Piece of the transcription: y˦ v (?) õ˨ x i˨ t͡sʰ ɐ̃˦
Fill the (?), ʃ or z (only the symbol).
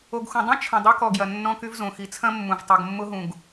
z